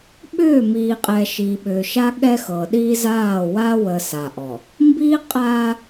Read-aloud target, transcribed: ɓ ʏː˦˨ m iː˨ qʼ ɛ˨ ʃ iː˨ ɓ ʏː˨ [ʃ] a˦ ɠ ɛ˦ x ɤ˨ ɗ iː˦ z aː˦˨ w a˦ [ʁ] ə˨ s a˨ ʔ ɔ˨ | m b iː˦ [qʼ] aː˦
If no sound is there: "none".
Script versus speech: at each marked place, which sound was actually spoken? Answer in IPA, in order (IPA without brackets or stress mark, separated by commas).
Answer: ʃ, w, qʼ